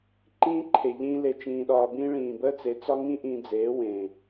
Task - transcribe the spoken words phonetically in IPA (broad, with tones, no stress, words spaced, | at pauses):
ǃĩː˦ǃʰe˨ ʎĩː˦ le˧t͡ʃĩː˧ɗɒː˧bĩː˦ ɭĩː˨bəː˦ t͡se˨˦t͡sɒ˦ŋĩ˦ ʔĩ˧d͡zeː˨˦wẽː˨